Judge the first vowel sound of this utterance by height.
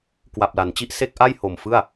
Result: low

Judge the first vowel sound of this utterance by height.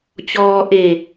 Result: mid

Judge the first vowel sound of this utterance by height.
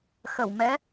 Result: mid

